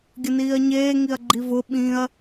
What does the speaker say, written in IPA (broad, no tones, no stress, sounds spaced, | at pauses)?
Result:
ɡʲ ə n iː ɐ̯ ɲ eː ŋ i ɐ̯ ɡ͡ǃ i v ʊ ɓ ĩ ɐ̯